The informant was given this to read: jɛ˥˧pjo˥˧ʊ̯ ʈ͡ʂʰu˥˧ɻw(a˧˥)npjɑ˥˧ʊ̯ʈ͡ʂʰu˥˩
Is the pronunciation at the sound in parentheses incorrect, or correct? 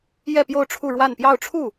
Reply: incorrect